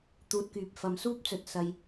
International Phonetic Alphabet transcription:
t̪ uː˨ t̚ k yː˨ p̚ f ɐ˨˥ m s uː˥ p̚ t͡s ɵ˨ t̚ s ɐ˧ j

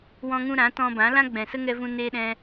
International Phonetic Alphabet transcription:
w ɔ̃˧ ŋ ũ˧ ɾ ã˨˦ t ɔ̃˧ b ã˨˦ l ã˦ ɡ͡b ɛ̃˨ s ə˦ ŋ ɛ˧ v ũ˧ n eː˧ ɗ ɛ̃˧

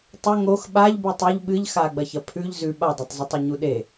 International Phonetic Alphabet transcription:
tˤ ɵ ŋ o x ɓ a ʎ b ʉ tˤ u ʎ ɓ ɨ ʎ x a ɡ͡b ɐ ç ɐ pʰ ʉ ʎ z ʉ ɓ a dˤ e tˤ z ɨ tˤ ɐ ɲ u ɗ e

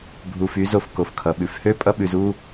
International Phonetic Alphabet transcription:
bʱ u˨ f y˨˦ z o˨ f k o˨ f kʰ ʌ˨ ɓ ʉ˨ f h ø˦ pʼ ʌ˦ ɓ ʉ˨ z u˦

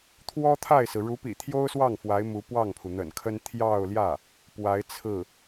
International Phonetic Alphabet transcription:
t̪ʰ w ɔ˥ t̪ʰ a˥˩ ɪ̯ s ɹ̩˩ ɻ u˧˥ p ḭ˨˩ t̪ʰ j o˥ ʊ̯ s w ɑ˥˩ ŋ f w a˧˥ ɪ̯ m u˧˥ p w ɑ˥˩ ŋ pʰ u˩ n̪ ə̰˨˩ n kʰ ə˥ n t̪ʰ j ɑ˥˧ ʊ̯ l j ä˥˩ | p w a˧˥ ɪ̯ t͡sʰ ɹ̩˥˩

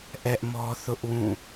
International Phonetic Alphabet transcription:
ʔ ɛ˦ ʔ m ɔ˦ θ ʊ˦ ʔ w ũ˦˨

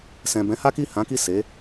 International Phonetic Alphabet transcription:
s ɛ̃˨ b ɛ̃˨˦ h a˦ k i˦˨ h ã˨˦ k i˦˨ s e˨˦

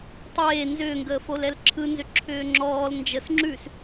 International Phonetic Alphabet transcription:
tˤ eː n z ʏː ŋ ɡ əː f o l ɛ l ǁʰ ɯ n z ʏ ǁʰ ʏː ŋ͡ǁ ɔː l n d͡ʒ ə s ŋ͡ǁ ʉ s

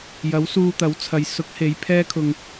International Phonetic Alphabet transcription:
j ɐ˨˥ w s uː˧ t̪ ɐ˨˥ w t͡sʰ ɐ˨ j s ʊ˨˥ k̚ h e˨˧ j pʰ ɛː˥ kʰ ʊ˧ ŋ

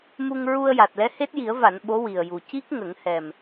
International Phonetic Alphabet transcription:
m u˧ ŋ ɹ u˧ ə̯ j a˨˩ t̚ l ɛ˧˥ h e˦˥ t̚ j i˨˩˦ ə̯ v a˨˩˨ n ɓ o˧˥ w i˨˩ ə̯ j u˨˩ c i˦˥ k̚ ŋ ə˨˩˦ ŋ h ɛ˨˩ m

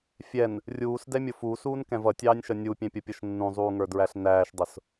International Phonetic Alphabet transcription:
fʲ ɛ n | rʲ uː s d ɛ mʲ ʊ f uː s uː n k ɛ̃ v ʌ tʲ ɑː nʲ ʃ ʌ nʲ u pʲ ɛ̃ pʲ ʌ pʲ ʌ ʃ nː ũ zˤ uː ŋ ə˞ d ɹ æ ɬ n æː ʃ dˤ ʊ s

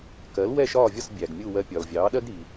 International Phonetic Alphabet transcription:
k ɜ˩˥ l w ɛ˥˩ ʃ ɒː˥˩ vʲ ɒ˥˩ s bʲ æ˩ ɡ mʲ u˥˩ w ɜ˧ pʲ ɒ˩ l vʲ ɑː˩˥ ɗ ɜ˥ ɡ ɾ i˩

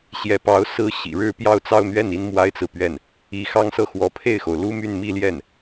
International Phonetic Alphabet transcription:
ɕ j ɛ˧˥ p ɑ˧˥ ʊ̯ s ɹ̩˥ ɕ ḭ˨˩ ɻ ɻ̩˥˧ p j ɑ˥˧ ʊ̯ t͡s ɑ˥˧ ʊ̯ n̪ ɥ ɛ˥˩ n i˥ n m w a˥ ɪ̯ t͡s ɹ̩˨ p ɥ ɛ˥˩ n | i˧˥ x ɑ˥ ŋ s ɤ˥˩ x w ɔ˧˥ pʰ e˥˩ ɪ̯ x o˩ ʊ̯ l u˥ m y˥˧ n m i˥˧ l j ɛ˥˩ n

